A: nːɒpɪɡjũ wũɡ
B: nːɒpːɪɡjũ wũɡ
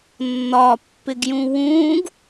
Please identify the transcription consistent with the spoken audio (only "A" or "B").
B